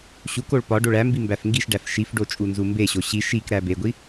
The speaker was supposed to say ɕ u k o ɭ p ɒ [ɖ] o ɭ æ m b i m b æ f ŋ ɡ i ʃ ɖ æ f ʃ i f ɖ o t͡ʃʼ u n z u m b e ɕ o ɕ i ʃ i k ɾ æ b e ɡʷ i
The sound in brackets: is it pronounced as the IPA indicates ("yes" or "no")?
yes